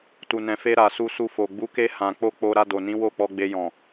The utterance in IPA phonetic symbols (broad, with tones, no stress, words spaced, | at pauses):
tu˨nɛ̃˨fe˧ ɾa˨su˧su˧fo˨ ɡ͡bu˨˦ke˧ hã˨k͡po˧ k͡po˧ ɾa˧do˨nĩ˨˦ wo˦˨k͡pɔ˧ɡ͡be˧jɔ̃˨